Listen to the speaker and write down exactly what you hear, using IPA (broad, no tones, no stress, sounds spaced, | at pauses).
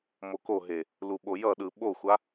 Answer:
m o k o ɦ e | l u ɓ o j ʌ ɗ ɯ ɓ o xʷ a